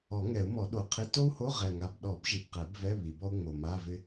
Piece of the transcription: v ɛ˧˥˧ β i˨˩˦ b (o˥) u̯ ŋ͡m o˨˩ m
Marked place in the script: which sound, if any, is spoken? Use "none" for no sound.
ɔ˥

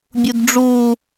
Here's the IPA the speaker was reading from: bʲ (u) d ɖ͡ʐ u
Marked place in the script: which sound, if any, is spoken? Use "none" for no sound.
u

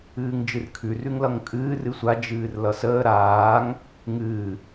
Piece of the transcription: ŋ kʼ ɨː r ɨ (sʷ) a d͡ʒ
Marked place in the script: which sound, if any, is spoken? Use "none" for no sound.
sʷ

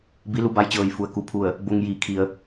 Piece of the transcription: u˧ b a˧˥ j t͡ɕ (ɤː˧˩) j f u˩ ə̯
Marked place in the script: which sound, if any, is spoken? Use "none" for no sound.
ɤː˧˩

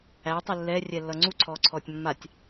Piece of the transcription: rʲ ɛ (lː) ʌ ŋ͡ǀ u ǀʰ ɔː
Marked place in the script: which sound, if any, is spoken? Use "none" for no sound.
lː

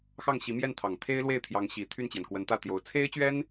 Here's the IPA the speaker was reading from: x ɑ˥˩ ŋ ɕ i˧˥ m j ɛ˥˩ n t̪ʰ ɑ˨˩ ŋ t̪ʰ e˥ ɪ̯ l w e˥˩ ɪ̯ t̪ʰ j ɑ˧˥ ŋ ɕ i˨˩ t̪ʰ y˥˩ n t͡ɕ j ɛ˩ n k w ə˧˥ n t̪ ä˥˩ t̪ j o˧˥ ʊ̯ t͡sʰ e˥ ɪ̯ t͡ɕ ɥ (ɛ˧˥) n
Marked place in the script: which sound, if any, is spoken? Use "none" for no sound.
ɛ˥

